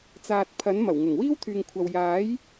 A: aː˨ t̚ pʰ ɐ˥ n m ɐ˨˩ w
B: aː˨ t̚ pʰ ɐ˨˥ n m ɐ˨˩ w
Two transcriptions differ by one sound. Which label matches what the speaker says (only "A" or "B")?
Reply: B